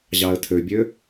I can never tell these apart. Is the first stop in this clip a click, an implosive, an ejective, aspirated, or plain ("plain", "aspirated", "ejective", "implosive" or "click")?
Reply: aspirated